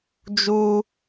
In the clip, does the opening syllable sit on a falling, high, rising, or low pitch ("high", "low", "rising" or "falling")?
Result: high